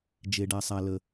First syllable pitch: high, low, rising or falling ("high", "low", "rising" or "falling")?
low